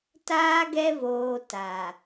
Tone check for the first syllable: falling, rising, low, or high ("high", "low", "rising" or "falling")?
high